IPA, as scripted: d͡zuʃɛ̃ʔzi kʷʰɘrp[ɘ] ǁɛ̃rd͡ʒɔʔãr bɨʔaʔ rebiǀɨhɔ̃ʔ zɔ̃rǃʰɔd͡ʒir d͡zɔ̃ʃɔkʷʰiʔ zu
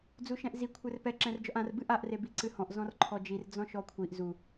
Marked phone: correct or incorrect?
incorrect: ɛ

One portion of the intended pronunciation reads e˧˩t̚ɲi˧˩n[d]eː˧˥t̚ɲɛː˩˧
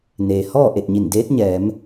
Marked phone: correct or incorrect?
correct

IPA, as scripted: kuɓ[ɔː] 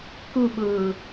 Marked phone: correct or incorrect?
incorrect: ʊː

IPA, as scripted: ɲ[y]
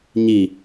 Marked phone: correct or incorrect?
incorrect: i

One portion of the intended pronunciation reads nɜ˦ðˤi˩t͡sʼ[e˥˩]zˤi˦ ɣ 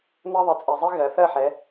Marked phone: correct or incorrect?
incorrect: e˩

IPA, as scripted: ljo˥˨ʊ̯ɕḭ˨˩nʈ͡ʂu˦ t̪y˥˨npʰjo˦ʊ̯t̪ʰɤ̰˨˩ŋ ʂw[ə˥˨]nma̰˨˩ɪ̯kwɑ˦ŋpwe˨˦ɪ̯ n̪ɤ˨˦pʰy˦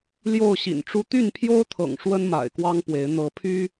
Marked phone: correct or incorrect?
incorrect: ə˦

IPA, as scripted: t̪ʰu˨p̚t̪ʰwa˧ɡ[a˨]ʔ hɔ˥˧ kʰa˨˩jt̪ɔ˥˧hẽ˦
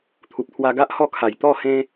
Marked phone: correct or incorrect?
incorrect: a˦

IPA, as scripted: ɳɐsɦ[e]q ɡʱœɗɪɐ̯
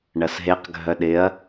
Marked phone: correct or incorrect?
correct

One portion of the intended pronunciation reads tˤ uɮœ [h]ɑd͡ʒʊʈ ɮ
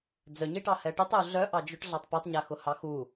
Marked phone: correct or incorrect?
incorrect: ʔ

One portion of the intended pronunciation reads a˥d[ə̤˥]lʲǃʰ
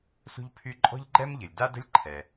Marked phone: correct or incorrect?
correct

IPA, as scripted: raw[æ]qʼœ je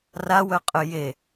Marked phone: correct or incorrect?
incorrect: œ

